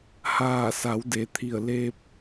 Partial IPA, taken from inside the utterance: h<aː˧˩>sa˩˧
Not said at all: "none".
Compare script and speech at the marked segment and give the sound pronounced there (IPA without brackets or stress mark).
aː˧˩